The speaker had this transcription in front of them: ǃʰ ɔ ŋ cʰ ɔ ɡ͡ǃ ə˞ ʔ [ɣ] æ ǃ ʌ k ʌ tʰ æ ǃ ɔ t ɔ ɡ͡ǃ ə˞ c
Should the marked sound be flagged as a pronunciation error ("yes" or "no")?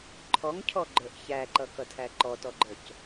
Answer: yes